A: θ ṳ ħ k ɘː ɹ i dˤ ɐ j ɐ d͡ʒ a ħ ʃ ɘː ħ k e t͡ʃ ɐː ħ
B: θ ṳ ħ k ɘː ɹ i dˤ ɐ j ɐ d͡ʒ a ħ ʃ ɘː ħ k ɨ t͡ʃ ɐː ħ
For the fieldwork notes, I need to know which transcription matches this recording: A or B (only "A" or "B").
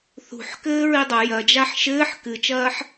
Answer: B